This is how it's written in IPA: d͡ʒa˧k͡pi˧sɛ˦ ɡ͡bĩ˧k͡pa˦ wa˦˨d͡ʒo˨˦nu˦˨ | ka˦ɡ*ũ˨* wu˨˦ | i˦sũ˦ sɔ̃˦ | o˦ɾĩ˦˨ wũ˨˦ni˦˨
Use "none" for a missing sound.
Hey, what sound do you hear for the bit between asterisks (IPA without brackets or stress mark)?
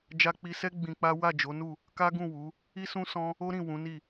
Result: ũ˦˨